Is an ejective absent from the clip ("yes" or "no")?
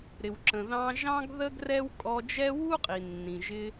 no